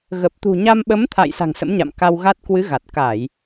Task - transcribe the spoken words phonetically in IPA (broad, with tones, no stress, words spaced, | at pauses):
ɣə˨˩p̚t̪ṳ˨˩ɲa˧m ɓə˨˦mt̪ʰa̰˧˨j sa̤˨˩ŋsə̰˧˥m ɲa̰˧˨mka˧wɣa˦˥t̚ kwɨ˨˦ɣa˨˩t̚ ka˧˩˨j